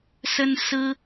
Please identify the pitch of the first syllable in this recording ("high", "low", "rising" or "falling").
high